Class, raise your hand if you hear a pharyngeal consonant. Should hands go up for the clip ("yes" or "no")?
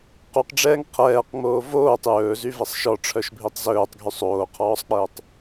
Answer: no